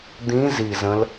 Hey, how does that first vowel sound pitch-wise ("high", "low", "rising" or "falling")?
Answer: rising